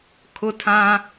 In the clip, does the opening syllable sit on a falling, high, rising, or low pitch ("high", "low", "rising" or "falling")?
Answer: high